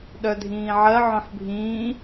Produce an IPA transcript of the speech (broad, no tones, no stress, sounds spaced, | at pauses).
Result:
ɗ œ dʱ ĩː ʕ ɜ ʕ œ̃ ħ bʱ ĩː